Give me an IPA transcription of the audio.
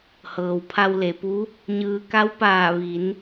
h ɤː˩ w pʰ a˧ w l e˩ p u˧˥ | ɲ ɯː˧ k a˧˥ w p aː˧˩ ʋ i˩˧ n

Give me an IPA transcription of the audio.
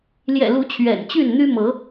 l j ɛ̰˨˩ l u˨˦ t͡ɕʰ ɥ ɛ̰˨˩ n t͡ɕ y˥˨ n n̪ y˦ m ɤ˨˦

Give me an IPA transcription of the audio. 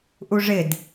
ʔ u ʐ ɪ d

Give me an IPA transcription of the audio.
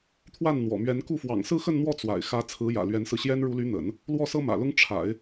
t̪ʰ w a˥˩ n n̪ w ɔ̰˨˩ m ɥ ɛ˧˥ n k u˥˩ f w ɑ̰˨˩ ŋ s ɹ̩˥˧ x ə˥˧ n n̪ w ɔ˥˩ t͡s w a̰˨˩ ɪ̯ x ä˧˥ t͡sʰ ɹ̩˧˥ j ä̰˨˩ l ɥ ɛ˧˥ n s ɹ̩˧ ɕ j ɛ˥ n ɻ u˧˥ l y˧˥ n̪ ə̰˨˩˦ n | l w ɔ˥˩ s ɤ˥ m ä̰˨˩ l ʊ˥ ŋ ʈ͡ʂʰ a̰˨˩˦ ɪ̯

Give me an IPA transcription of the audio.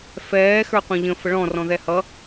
f ɛː x ə˞ qʷ ɛ̃ ʎ ə̃ f ə ɭ ɔ̃ r ɔ̃ ð ɛ h ʌ

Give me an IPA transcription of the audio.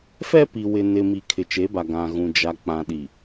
f ɛ˦ p i˨ w ɪ˨ n ɪ˨ m i˨ kʰ ɪ˨ t͡ʃ e˨˦ b a˨ ɡ ã˨ ɣ ũ˨ d͡ʒ a˨ k͡p ã˨ ɗ i˨

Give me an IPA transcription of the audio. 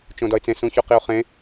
t͡ʃ õ d ɒ ɪ̯ t͡s ẽ s ũ ç o q i ʊ̯ χ ẽ

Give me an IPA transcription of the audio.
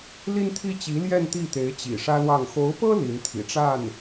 l i˥ n t̪ʰ i˥ t͡ɕ i˧˥ l j ɛ˥˧ n t̪ i˥˩ t̪ e˧˥ ɪ̯ t͡ɕ ḭ˨˩ ʂ ä˥ l w ɑ˥˩ ŋ x o˧˥ ʊ̯ p ɤ˥ l i˧˥ n t̪ʰ ḭ˨˩ ʈ͡ʂ a˥˩ n

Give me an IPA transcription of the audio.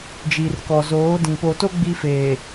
d͡ʒ i˨ r k ɔ˨ z oː˨˦ d ĩ˨ p o˨ t o˦ ɡ͡b i˦ f eː˨

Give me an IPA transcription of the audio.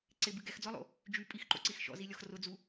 ǀ ɪ b ɨ ɡ ɛ x d͡z ɔ lˠ o̰ | d͡ʒ y pʼ i x ǃ o̰ ǀ i x ʃ ɔ̰ z i lʲ ɔ x r ʊ d͡z u

